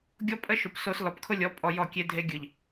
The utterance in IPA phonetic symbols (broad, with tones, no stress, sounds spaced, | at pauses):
ɡʲ ɔ˦ pʼ ə˦ ʃ ʊ˨ p s o˦ s l ɔ˨ p kʰ ʊ˦ lʲ ɔ˨˦ pʼ ɔ˨ j ɔ˦˨ kʲ e˦ dʱ e˦ ɡʲ ɯ˨ ʎ